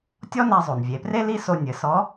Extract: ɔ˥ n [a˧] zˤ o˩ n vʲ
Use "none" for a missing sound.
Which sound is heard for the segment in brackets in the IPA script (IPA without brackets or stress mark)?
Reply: a˧